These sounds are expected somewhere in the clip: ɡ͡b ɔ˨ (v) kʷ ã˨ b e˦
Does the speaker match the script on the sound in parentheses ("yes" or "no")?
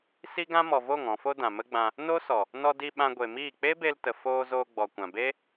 no